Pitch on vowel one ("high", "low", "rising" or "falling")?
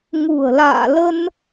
low